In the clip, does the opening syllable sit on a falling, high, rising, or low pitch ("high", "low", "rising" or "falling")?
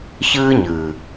high